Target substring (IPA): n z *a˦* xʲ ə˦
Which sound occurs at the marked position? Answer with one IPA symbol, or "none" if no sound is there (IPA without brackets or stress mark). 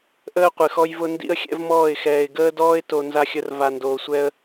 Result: a˦